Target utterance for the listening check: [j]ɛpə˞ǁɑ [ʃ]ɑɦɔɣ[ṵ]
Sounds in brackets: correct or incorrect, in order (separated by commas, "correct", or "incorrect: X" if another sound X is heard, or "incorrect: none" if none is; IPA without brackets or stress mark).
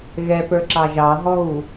incorrect: ɣ, incorrect: ʒ, incorrect: u